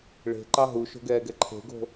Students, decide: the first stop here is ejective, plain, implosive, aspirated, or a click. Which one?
click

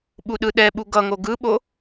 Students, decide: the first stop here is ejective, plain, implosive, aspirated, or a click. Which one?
implosive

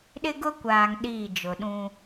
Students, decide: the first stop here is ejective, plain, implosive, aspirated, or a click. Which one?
implosive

